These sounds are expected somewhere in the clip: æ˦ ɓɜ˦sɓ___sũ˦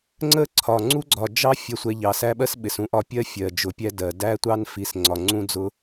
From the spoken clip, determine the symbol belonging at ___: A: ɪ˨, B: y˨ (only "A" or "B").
A